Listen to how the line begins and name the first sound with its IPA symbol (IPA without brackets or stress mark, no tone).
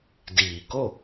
d